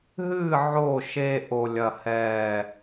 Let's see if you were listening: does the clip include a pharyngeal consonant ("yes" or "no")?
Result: yes